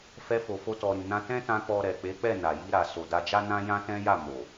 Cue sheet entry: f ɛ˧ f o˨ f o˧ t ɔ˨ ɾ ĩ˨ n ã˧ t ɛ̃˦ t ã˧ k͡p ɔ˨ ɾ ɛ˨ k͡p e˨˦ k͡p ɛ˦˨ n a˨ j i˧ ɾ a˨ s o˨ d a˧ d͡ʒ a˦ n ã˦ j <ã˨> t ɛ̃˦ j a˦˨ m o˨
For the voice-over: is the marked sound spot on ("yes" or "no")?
no